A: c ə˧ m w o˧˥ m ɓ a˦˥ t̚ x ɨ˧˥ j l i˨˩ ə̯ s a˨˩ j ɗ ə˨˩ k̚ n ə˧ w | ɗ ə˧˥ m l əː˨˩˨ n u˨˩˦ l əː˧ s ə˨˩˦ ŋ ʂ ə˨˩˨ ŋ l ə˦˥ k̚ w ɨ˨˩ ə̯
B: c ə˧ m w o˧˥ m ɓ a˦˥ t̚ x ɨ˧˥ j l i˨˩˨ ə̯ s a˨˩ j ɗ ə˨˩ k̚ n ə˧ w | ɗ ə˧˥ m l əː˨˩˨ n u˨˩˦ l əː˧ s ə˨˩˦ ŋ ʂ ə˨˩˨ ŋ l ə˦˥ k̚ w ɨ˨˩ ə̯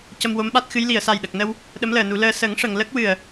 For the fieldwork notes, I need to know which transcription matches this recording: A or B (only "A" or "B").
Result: B